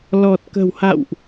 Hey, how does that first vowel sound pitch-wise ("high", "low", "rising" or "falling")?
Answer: low